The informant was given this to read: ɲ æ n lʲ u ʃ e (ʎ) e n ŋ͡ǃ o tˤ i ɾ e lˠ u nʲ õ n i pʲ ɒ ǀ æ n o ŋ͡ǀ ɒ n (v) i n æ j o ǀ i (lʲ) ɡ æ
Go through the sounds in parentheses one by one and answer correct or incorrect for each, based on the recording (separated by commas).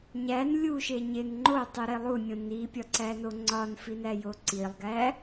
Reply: incorrect, incorrect, incorrect